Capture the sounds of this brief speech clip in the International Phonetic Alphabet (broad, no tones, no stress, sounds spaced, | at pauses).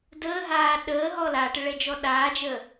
d əː ɦ aː ɗ əː ɦ ɔ l a ʈ ə ɭ ɛ d͡ʒ ɔ ɗ aː d͡ʒ ə